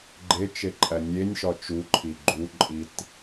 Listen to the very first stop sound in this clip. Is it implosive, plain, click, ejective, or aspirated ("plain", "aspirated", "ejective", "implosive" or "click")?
click